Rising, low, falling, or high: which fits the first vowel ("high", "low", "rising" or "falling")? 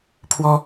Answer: high